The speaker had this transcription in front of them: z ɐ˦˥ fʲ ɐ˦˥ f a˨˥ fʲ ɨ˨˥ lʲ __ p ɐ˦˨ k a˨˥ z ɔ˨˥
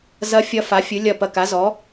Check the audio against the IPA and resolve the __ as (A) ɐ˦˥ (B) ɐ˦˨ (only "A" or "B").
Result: B